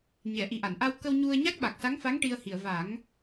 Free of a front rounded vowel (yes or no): yes